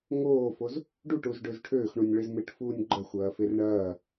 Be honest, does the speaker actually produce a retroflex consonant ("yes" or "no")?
yes